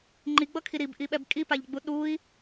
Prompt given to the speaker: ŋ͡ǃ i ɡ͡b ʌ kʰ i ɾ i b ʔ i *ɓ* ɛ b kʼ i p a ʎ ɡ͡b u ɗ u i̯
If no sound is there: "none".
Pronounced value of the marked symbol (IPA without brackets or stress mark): ɓ